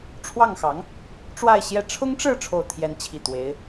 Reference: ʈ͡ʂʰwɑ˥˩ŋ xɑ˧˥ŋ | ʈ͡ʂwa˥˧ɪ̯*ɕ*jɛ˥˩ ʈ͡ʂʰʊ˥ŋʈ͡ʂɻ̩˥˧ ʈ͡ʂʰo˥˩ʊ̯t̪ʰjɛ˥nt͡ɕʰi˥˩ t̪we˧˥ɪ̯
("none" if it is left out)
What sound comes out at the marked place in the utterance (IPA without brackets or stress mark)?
ɕ